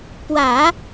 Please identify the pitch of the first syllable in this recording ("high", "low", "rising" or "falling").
low